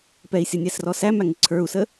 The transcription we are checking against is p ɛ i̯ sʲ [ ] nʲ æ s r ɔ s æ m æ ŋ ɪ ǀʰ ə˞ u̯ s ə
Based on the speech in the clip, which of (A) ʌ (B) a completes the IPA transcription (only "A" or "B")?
A